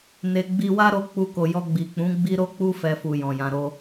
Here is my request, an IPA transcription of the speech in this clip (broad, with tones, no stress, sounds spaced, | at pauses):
n e˨ ɡ͡b i˧ w a˦ ɾ o˧ k͡p u˧ k o˨ j ɔ˧ ɡ͡b i˨ k͡p ũ˨˦ ɡ͡b i˦ ɾ o˦ k͡p u˦ f ɛ˧ f u˧ j ɔ̃˨ j ã˧ ɾ o˦